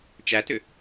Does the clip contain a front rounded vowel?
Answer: yes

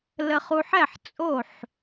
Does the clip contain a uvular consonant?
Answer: yes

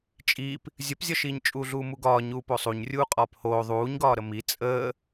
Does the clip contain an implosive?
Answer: no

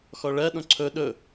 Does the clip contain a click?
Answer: yes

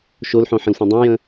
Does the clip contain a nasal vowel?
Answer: yes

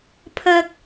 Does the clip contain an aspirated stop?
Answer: yes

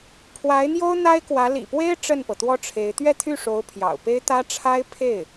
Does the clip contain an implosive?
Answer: no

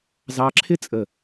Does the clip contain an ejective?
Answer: yes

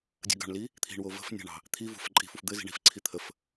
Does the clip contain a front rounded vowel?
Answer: no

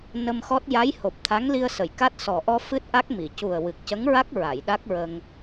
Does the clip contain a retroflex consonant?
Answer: no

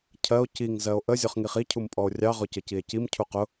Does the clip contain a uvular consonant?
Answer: yes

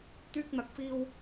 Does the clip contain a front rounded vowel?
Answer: yes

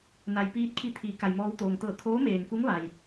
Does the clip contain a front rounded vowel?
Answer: no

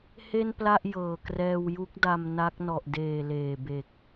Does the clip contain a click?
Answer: no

